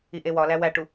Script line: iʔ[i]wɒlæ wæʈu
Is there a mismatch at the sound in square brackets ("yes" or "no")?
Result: yes